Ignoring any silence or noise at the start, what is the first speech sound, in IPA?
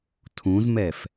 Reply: tʰ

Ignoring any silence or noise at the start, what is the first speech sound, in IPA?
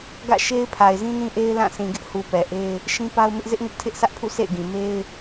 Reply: ɡ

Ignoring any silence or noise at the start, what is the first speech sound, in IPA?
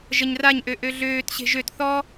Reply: ʒ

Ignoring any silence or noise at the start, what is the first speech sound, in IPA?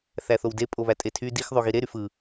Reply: θ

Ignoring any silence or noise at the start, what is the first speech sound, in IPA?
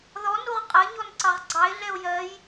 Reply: ð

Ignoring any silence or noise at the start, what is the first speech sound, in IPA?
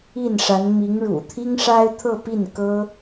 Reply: i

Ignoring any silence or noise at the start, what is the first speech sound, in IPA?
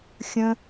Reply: xʲ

